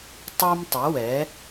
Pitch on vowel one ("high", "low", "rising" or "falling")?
high